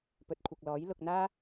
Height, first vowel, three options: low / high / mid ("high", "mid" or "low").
mid